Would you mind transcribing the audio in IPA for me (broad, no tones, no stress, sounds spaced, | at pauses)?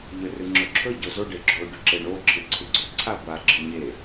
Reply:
ʎ ɵ r ɨ ŋ͡ǁ ɵ ǁʰ ɵ ɟ o z o ɖ e ɡ͡ǁ o ɖ ʉ ǁ e ɳ o ǁʰ ɨ ǀʰ ʉ ɡ͡ǀ ɵ ǀʰ a ɡʷ a ɡ͡ǁ ɨ ɲ e